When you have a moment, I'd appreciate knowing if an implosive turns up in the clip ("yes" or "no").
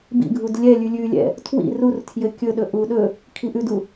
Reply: yes